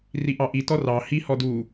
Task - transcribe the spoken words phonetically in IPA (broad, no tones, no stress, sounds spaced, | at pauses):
r i ʔ ɑ ʔ i t ɔ r ɑ h i h ɔ d u